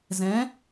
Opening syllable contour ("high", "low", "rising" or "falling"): rising